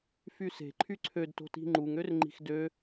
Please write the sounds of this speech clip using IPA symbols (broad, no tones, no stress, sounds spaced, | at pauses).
f y s e̤ ǃʰ y ǀʰ ø d t o̤ t i̤ ŋ͡ǃ u ŋ ø r ŋ͡ǃ i̤ x d ø